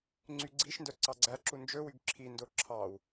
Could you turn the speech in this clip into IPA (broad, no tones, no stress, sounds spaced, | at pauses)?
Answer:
ŋ͡ǀ y ɡ͡ǀ i ʃ n d œ ǀ ɑ ɡ͡ǀ æ ǁ u n d͡ʒ ɵ w y ɡ ǁʰ i n d o ǁʰ ɑ w